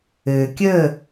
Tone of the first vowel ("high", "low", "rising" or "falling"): low